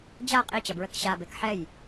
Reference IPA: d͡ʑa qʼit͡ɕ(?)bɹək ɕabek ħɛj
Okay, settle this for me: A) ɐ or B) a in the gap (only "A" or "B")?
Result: A